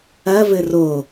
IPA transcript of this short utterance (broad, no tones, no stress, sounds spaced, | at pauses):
ɐ v ɘ r o